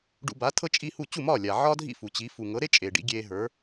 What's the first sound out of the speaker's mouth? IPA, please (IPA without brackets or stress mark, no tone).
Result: ɖ